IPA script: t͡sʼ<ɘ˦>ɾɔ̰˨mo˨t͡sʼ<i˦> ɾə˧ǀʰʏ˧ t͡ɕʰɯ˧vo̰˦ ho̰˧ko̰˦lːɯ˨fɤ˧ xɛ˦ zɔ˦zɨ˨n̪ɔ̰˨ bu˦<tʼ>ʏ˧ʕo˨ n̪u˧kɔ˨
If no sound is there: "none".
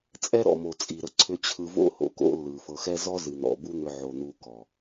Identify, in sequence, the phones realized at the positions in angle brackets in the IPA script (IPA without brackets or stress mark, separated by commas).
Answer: ɛ˦, i˨, n̪